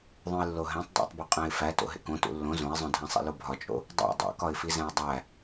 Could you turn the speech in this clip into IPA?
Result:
ðˤ õ ɪ̯ lː o ɦ æ̃ tˤ dˤ æ̰ tˤ b o qʼ æ̃ ɪ̯ f æ t o̰ ɦ ḛ k õ t ṵ lː õ z õ ɪ̯ zˤ õ dʱ æ̃ sˤ ḭ l o bʱ ɒ t͡ʃʼ o̰ | dˤ æ̰ dˤ o̰ k ɒ ɪ̯ f i z æ̃ ɪ̯ dˤ æ

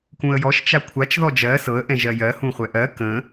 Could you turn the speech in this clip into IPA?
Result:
k ũ ə̯ j ɔ ʃ t͡ʃ a kʷʰ a t͡ʃ ð ɔ d͡ʒ ɜ s ɤ ə̯ ʔ ɛ̃ ʒ ɜ j ɜ h ũ χʷ ɛ ʔ ɜ k ə̃

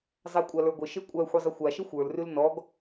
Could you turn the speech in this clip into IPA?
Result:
zˤ æ kʷʼ a l ə˞ ɡʷ ə ʃ e kʷʼ æ xʷ e zˤ ə xʷ a ʃ ə xʷ ə˞ l r ʉ l n ɔ ɡ

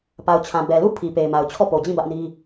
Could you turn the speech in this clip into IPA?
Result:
p a˨ ʊ̯ t͡ɕʰ ã˨ b ɛ˨ l u˦˨ pʰ i˨ p e˨ ɪ̯ m a˨ ʊ̯ t͡ɕʰ ɔ˦˨ p o˨ d͡ʑ ĩ˦˨ b ä˦ ʔ n i˦

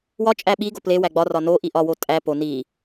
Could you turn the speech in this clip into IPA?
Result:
w ɒ t͡ʃʼ æ ɓ i ɡ o p l e w æ ɡ͡b ɒ r ɒ n o ʔ i ʔ ɒ w o tʼ æ p o n i

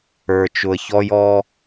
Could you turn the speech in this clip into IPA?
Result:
ə˞˨ t͡ʃ ʊ˨ ə̯ ç ɔ˦ j ɔ˦

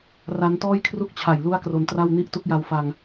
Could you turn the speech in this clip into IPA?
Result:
r a˦˥ n t ɔː˥˩ j kʰ r u˥˩ k̚ t͡ɕʰ a˨˩ j l u˥˩ a̯ k r o˧ n t r a˥˩ w n i˥˩ ʔ t u˥˩ k̚ j a˧ w f a˧ ŋ

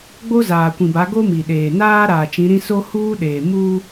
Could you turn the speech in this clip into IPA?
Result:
ɡ͡b o˦ z aː˨ kʷ ĩ˨ b a˨˦ ɡ o˦ m i˨ ɗ eː˨ n aː˦ ɾ aː˨ t͡ʃ ĩ˨˦ ɾ ĩ˦ s o˦ h uː˦ ɗ eː˨ m uː˦

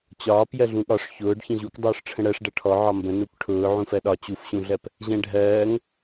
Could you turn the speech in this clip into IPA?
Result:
t͡ɕ ɒː p j ɜ ɮ ũ ɠ ɒ ʂ ç ʊː ɖ ç ə̃ ʑ u k dˤ ʊː ʂ ʈ͡ʂʰ ə̃ ɽ ɜ ʂ ɖ ʌ ʈʰ ɔ ʕ ɒ m b ə̃ n u k ʈʰ ʊː ʕ ũ f ɜ ɗ ɒ t͡ɕ u f ɕ ũ ɮ ɜ p | ʑ ɛ̃ ɖʱ ɜː ŋ

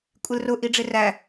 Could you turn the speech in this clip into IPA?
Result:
kʷʼ ɪ l r ʊ ʔ i ɖ͡ʐ ɪ r æ

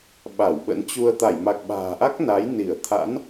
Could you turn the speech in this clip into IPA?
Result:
ɓ a˧˩ w ɓ ə̰˧˥ n t͡ɕ u˧ ə̯ t̪ a˧˩ j m a˨˩ k̚ ɓ a̤ː˨˩ ʔ a˦˥ k̚ n a˨˦ j n i˧˩ ə̯ t̪ʰ a̰˧˥ n

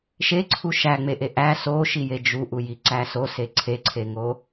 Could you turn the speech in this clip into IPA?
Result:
ʃ e ǀʰ u ʃ æ ŋ͡m e ʔ e ʔ æ s o ʃ i j e d͡ʒ u ʔ u j i ǀ æ s o s e ǀʰ e ǀʰ e ŋ o

